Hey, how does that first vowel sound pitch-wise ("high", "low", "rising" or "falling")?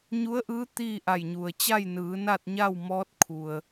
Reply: rising